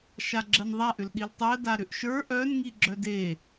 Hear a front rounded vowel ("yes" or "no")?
yes